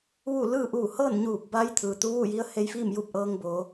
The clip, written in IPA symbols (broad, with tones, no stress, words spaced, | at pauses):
ʋuː˥˨ lɯː˥˨ʔuː˧˩ hɤː˥˨nɲuː˧˩p̚ba˧j t̪ʰɯː˩t̪u˧˥ʋu˥˨ji˧˥ə̯ he˧jfiː˥˨m juː˥˨p̚ʔɤː˧ŋboː˩˧